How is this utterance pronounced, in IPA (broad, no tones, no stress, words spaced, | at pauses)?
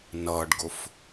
nʌːɖɡʊf